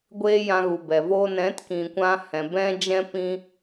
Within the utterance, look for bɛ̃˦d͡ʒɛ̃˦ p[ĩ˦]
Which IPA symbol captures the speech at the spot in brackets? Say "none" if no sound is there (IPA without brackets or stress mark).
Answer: ĩ˧